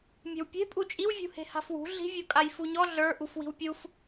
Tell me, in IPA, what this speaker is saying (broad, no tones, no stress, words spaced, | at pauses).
mʲe̤wpʲe̤ pʼut͡ʃʼiw vʲṳhe̤ha̤fwṳ ɮi̤vʲukʼaj fuɲɔ ɮə˞ ʔufwi̤wpʲuf